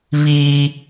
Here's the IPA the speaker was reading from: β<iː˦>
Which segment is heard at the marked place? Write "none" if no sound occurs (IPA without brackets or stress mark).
iː˦